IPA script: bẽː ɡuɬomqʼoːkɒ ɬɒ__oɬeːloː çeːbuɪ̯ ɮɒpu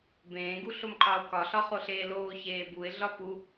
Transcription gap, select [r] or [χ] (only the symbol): χ